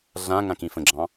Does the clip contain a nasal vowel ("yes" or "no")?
yes